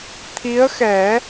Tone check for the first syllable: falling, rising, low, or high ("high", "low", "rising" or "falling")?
rising